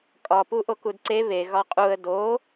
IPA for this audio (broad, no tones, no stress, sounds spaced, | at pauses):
kʼ ɒ p u ʔ o k u d ǀ e β e ɣ ɒ qʼ u ə̯ d o